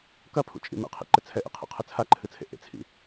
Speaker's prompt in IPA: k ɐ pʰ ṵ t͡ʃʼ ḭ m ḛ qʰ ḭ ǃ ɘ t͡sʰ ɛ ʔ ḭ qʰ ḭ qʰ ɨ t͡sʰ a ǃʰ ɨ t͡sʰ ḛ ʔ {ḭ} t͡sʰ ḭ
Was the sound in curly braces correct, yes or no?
no